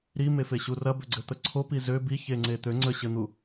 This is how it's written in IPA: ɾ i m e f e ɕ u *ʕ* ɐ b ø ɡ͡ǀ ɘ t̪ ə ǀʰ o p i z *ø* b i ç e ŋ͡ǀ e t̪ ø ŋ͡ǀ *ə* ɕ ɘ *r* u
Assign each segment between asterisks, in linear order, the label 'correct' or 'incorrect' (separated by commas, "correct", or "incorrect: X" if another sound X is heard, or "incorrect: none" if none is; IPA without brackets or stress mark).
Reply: incorrect: r, correct, correct, incorrect: n̪